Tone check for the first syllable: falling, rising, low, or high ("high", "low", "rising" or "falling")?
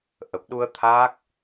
low